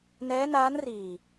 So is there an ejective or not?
no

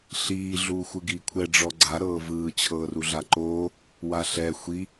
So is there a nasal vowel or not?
no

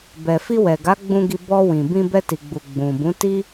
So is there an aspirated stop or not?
no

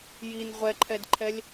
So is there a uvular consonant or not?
yes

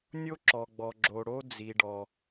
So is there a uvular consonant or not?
no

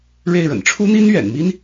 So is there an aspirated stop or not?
yes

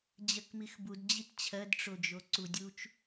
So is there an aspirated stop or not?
yes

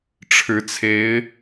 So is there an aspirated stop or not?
yes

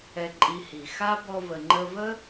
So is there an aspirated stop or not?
no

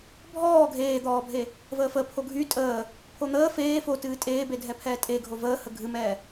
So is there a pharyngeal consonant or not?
no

